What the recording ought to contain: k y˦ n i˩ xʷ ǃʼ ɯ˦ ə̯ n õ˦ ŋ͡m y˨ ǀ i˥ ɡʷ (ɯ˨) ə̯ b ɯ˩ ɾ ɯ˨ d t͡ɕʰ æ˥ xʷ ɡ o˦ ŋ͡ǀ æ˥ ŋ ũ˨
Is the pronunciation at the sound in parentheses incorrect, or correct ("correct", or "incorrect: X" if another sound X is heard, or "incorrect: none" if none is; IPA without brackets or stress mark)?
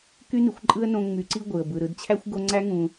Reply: incorrect: ɯ˩